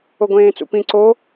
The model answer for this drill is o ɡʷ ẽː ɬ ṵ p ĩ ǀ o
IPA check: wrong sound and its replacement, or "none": ɬ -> t͡s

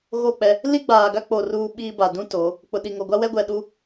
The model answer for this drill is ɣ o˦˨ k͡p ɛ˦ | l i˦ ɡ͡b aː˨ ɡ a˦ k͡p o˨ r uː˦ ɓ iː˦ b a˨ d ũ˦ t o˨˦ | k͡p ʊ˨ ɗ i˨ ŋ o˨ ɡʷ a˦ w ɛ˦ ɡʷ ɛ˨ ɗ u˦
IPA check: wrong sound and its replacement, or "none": none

